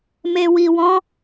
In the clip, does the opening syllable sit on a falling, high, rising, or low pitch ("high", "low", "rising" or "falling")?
low